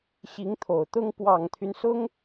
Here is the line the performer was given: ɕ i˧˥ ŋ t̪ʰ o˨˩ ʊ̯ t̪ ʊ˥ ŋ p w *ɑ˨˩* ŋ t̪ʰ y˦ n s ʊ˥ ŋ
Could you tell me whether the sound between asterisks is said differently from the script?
no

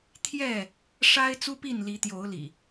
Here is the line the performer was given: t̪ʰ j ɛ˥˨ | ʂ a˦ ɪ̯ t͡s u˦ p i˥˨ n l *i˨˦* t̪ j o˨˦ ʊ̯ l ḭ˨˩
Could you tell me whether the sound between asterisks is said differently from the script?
no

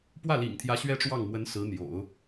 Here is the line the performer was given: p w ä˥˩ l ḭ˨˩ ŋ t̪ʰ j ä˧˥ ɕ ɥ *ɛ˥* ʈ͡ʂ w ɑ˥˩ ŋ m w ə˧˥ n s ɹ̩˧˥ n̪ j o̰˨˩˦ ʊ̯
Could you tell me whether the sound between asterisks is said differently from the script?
no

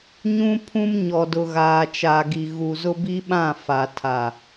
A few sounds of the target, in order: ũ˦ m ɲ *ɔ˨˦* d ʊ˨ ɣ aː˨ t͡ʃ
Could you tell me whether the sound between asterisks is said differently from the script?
yes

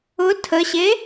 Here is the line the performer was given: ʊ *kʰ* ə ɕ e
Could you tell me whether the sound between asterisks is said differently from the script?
yes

